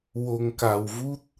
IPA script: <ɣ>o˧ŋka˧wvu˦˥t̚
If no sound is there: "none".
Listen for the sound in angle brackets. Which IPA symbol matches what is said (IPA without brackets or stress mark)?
w